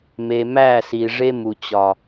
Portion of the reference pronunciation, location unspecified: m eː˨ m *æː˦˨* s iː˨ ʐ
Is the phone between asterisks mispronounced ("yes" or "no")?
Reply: no